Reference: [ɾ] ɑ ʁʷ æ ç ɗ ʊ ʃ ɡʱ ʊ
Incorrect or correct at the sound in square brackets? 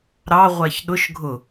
correct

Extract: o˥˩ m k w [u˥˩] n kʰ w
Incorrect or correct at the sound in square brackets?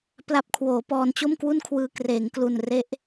correct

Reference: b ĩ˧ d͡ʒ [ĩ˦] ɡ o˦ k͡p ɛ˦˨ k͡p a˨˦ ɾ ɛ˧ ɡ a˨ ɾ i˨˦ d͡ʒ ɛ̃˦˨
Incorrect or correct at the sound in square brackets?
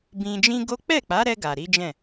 correct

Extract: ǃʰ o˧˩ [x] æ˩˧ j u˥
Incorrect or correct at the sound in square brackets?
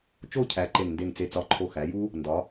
correct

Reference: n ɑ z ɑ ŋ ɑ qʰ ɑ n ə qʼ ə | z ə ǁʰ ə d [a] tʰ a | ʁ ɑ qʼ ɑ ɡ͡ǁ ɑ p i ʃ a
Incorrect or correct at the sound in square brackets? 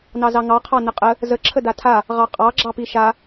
correct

